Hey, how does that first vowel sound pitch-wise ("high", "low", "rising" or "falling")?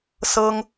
high